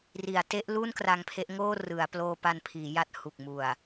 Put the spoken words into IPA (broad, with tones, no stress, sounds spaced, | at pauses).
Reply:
r i˩˦ a̯ t e˦˥ ʔ l u˥˩ n k r a˧ ŋ pʰ e˦˥ ʔ ŋ oː˥˩ r ɯ˩˦ a̯ p l oː˧ p a˧ n pʰ iː˩˦ j a˦˥ t̚ h u˨˩ k̚ m u˨˩ a̯